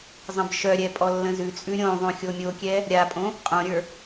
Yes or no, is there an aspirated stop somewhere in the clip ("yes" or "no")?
no